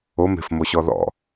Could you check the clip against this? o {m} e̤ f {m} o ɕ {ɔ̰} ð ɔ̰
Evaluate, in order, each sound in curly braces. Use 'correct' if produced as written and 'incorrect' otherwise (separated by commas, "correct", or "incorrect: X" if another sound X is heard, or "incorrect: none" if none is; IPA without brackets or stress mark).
correct, correct, incorrect: ɔ